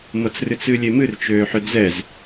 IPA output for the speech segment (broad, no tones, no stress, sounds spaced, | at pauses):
m ɤ t͡s r ɨ t͡s ɨ lʲ e m ɨ r t͡ʃ øː ħ ʏ d͡z ɛ z